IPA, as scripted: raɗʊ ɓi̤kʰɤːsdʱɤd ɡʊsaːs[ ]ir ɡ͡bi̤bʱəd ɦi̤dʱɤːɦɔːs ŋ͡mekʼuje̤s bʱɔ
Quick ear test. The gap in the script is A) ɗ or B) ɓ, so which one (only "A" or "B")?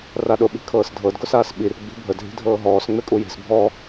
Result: B